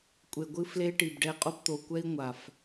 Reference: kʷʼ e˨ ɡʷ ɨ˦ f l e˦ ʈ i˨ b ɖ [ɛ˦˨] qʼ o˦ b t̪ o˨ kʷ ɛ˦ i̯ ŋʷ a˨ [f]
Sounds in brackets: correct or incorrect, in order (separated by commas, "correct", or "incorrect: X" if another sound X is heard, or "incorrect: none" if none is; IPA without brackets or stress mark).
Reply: correct, correct